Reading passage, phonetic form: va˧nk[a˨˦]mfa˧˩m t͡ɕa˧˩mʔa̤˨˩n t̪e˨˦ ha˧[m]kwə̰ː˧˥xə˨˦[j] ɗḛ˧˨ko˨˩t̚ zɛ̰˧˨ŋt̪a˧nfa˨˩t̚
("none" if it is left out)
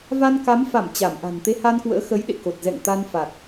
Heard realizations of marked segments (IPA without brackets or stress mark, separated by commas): a˨˦, n, j